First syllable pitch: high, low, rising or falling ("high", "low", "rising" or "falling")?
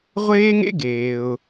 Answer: high